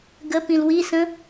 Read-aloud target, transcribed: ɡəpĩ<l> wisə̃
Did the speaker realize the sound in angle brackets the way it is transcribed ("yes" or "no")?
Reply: yes